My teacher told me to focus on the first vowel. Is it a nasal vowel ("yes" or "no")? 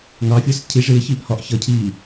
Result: no